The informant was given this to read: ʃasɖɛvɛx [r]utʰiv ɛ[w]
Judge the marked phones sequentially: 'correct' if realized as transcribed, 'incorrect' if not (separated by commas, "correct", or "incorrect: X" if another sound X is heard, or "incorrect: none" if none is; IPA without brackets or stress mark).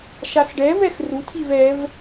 correct, incorrect: v